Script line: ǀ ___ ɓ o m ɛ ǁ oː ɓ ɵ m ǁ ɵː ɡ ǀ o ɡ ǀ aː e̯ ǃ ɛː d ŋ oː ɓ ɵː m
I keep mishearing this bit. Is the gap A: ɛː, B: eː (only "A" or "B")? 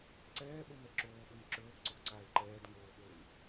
A